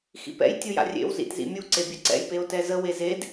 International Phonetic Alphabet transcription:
x ḭ p ɛ̰ j tʲ u j a̰ rʲ ḛ w z ḭ t z ḭ mʲ u ǀ e bʲ œ ǀ ɛ̰ j p e o̯ t ɛ z ə w e z e d

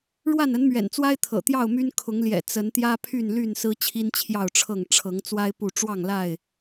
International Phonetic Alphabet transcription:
ɻ w a˥˨ n ə˨˦ n m ɥ ɛ̰˨˩ n t͡s w a˦ ɪ̯ t̪ʰ ɤ̰˨˩ t̪ j ɑ˥˨ ʊ̯ m y˦ n kʰ ʊ˨˦ ŋ l j ɛ̰˨˩ t͡s ə˨˦ n t̪ j ä˦ pʰ y˥˨ n l y˥˨ n s ɹ̩˦ t͡ɕʰ i˦ n t͡ɕʰ j ɑ˥˨ ʊ̯ ʈ͡ʂʰ ɤ˥˨ ŋ ʈ͡ʂʰ ɤ˨˦ ŋ t͡s w a˦ ɪ̯ p u˥˨ ʈ͡ʂ w ɑ˥˨ ŋ l a˥˨ ɪ̯

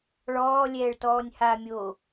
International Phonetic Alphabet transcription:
ɭ ɔː lʲ ɛː ɭ t ɔː nʲ h a mʲ o

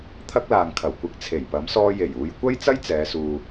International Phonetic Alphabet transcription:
t̪ʰ ɐ˥ k̚ l aː˨ ŋ kʰ ɐ˨˩ w kʷ ɪ˨˥ k̚ t͡sʰ e˨˩ j p ɐ˨˥ m s ɔː˧ j e˨˩ j uː˨˧ j kʷ ɐ˥ j t͡s ɐ˥ j t͡s ɛː˨˧ s uː˨

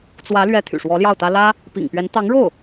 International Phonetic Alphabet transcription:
t͡s w ä˧˥ l ɥ ɛ˧˥ t̪ʰ y̰˨˩ ʂ w ɔ˧˥ l j ɑ˥˩ ʊ̯ t̪ ä˥ l ä˥ | p ḭ˨˩ ŋ p ɥ ɛ˧˥ n t̪ ɑ˧˥ ŋ ɻ o˥˩ ʊ̯

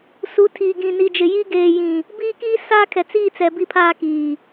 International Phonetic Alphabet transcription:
s u˨˦ tʰ iː˨ ɡ ĩ˨ n i˨ d͡ʒ ɪ˨ j i˦ ɡ eː˨ j ĩ˨ | b iː˦ k iː˦ s aː˦ kʰ ɛ˨ t͡s iː˦˨ t͡s ɛ˨ b i˦ pʰ aː˦ k iː˨

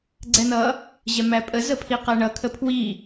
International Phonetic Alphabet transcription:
ɡ͡ǀ ɛ n ʌ | ʑ ɛ m æ pʼ ə z ə pʰ i q æ ɳ ʌ kʰ ə pʰ w i

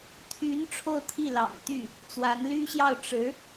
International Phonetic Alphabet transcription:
t̪ʰ y˧˥ n ʈ͡ʂʰ o˥˧ ʊ̯ t̪ʰ i˥˩ l ɑ̰˨˩ ŋ t̪ y˥˩ | t͡s w a˧˥ n l y˥ ɕ j ɑ˥˩ ʊ̯ ʈ͡ʂ ɻ̩˧˥

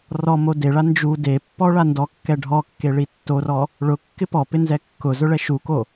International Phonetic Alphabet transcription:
r ɔ m o d e ɭ a n d͡ʒ u d e pː ɔ ɭ a n d ɔ kː ɛ ɖʱ ɔ kː e ɭ i tː o r ɔ | ɭ ʊ kː ɪ p ɔ p ɪ n z ɛ kː ʊ z ʊ ɭ ɛ ʃ u k o

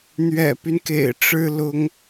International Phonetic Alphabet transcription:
n̪ ɥ ɛ̰˨˩ p y˦ n k ḛ˨˩ ɪ̯ ʈ͡ʂ ɻ̩˥ l ʊ˥ ŋ

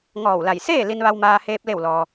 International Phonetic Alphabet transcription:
ŋ ɔː˧˩ w l a˧˩ j s eː˥˨ l i˧ n ʋ a˧ w m aː˧ h eː˧ p̚ l e˧˩ w l ɔː˩

